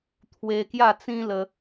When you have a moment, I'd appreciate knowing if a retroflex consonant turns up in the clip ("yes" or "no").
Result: no